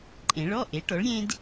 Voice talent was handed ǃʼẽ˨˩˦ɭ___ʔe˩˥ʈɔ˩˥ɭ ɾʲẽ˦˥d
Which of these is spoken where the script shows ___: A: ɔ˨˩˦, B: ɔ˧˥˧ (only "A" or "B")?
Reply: B